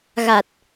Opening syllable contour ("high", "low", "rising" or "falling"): low